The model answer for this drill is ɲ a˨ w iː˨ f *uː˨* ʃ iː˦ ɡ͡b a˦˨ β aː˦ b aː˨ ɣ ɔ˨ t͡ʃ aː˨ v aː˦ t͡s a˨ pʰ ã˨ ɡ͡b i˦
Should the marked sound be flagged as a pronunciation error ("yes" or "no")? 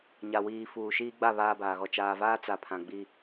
no